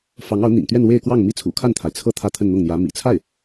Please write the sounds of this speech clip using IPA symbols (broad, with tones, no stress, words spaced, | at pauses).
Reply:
fɑ˧˥ŋɑ˧˥ʊ̯n̪ḭ˨˩ŋt̪ɥɛ˥˧n we˥˧ɪ̯kwɑ˥˩ŋ mi˥t͡sʰṵ˨˩ kʰa˥˩nt̪ʰa˩ɪ̯t͡sʰɤ˥˧ t̪ʰä˥˧t̪ʰə˥˧nn̪ʊ˥˩ŋn̪jä˧˥ mḭ˨˩t͡sʰa˥˩ɪ̯